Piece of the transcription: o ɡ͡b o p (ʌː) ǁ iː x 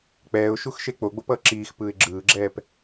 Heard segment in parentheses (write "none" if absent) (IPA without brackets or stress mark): ʌː